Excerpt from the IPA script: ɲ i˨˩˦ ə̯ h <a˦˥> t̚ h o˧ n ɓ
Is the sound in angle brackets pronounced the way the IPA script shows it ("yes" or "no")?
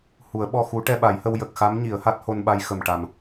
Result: yes